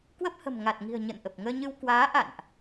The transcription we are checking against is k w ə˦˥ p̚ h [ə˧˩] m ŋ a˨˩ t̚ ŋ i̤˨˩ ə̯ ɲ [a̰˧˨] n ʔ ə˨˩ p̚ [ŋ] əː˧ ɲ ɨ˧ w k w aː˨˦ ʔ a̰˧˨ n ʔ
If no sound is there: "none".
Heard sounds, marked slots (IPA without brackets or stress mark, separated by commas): ə̤˨˩, ə̰˧˨, ŋ